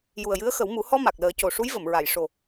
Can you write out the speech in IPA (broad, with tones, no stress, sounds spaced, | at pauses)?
j u˨˩ ə̯ j ɨ˧˥ ə̯ x ə˨˩˦ w m u˨˩˦ h ɔ˧ m a˨˩ k̚ l əː˨˩˦ c o˨˩ ʂ u˧˥ j v ə˨˩˨ m ɹ a˨˩˨ j ʂ o˨˩